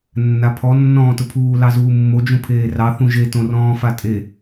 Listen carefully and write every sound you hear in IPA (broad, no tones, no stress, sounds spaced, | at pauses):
nː a pʰ ɔ nː ɔ̃ː t ʊ pʰ uː l ɑ z uː mː o d͡ʒ ũ pʰ eː r ɑ θ ũ ʒ e t õ r ɔ̃ː f a tʼ e